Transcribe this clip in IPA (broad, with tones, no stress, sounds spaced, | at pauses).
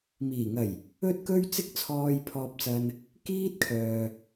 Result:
m iː˨˩ ŋ ɐ˨˩ j | ɵ˥ t̚ k ɵ˥ ɥ t͡s ɪ˥ k̚ t͡sʰ ɔː˧ j pʰ ɔː˧ p̚ t͡s ɐ˧ n | k iː˥ t̚ kʰ œː˨